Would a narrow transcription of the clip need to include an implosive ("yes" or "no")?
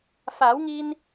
no